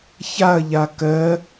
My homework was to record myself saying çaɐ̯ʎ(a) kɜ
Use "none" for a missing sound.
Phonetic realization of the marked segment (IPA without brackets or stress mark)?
a